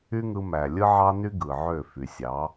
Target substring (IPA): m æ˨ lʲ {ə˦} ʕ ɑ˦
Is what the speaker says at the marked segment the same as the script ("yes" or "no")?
no